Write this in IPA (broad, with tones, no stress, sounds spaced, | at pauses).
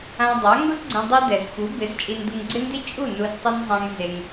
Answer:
ã˧ dˤ a˨˦ ŋ u˦ z ɡ͡ǀ ẽ˧ dˤ e˦ d ɛ˨ z f u˨˦ b ɪ˨˦ z t͡ʃʼ i˧ n d u˧ ŋ ɡ͡ǀ ɪ˦ n d i˦ t͡ʃʼ u˦˨ n u˧ z tˤ ɪ˦ n zˤ ã˦ ŋ z e˧ ŋ